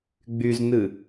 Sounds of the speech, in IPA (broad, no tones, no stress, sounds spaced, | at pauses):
ɡ͡b y z n ɨ